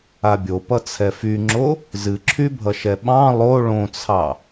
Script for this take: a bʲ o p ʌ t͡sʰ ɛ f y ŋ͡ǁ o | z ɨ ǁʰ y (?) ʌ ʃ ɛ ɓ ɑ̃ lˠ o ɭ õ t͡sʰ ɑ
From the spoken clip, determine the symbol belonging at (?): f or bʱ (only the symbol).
bʱ